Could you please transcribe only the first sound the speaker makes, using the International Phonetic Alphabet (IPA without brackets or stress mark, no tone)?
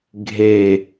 ɡʱ